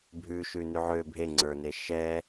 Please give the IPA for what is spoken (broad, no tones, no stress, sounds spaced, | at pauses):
bʱ ʉ ʃ ʉ n ʉ ʕ ø bʱ e ŋ͡ǀ ə˞ n e ʃ ɛ